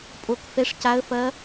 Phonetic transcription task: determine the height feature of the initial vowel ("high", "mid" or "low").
mid